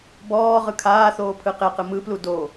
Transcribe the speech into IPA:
b ɔː ʁ ɯ kʰ aː θ oː pʰ ɯ q e q ɯ m ɯ p l u d o

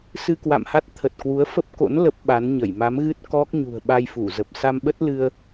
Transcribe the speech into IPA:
s ɨ˧ k w a̰˧˨ m h a˦˥ t̚ t̪ʰ ə˨˩ t̚ k w u˨˦ ə̯ f ə˦˥ p̚ k o̰˧˥ n l ə˦˥ p̚ ɓ a˨˦ n ɲ ə˧˩ j m a˨˦ m ɣ ɨ˦˥ t̚ k ɔ˦˥ k̚ ɲ ṳ˨˩ ə̯ ɓ a˧ j f u˧˩ z ə˨˩ p̚ s a˧ m ɓ ə˦˥ t̚ l ɨ˧ ə̯

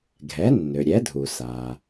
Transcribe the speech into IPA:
ɡʱ ɛ˩˥ nː ø˩ ɾʲ ɛ˩˥ dʱ u˩ s a˩

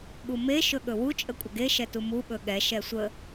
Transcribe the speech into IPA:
ɠ u m e ʃ ɵ ɠ ɵ w u t͡ʃʼ ə kʷʼ ə ɡ e ʃ ɛ t u m u ɓ ɵ ɠ ɛ ʃ ɛ sʷ ə

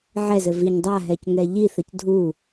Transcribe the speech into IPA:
ʕ ɛ z ɘ v i ɲ dˤ a ɦ ɛ c ŋ ɛ ʎ i θ ə c dʱ u

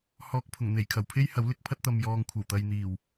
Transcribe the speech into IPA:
h ɔː˨ k̚ pʰ ʊ˨˩ ŋ n̪ e˨˩ j kʰ ɐ˨˩ w pʰ e˥ j h ɐ˨˥ w l ɪ˧ k̚ pʰ ɐ˥ t̚ t̪ ɐ˨ m j ɔː˨ ŋ kʷʰ ɐ˨˩ w t̪ ɐ˨ j n̪ iː˨˩ w

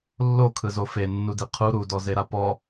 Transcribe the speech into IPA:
lː o kʰ ɯ z o f e nː u d i qʰ u ɾ u d ɔ z e ɾ a p ɔ

